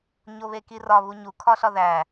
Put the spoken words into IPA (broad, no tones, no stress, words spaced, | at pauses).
ɲoβekirɒ βuɲu kʰɒɬɒðæ